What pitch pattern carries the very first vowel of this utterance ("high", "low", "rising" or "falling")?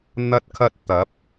high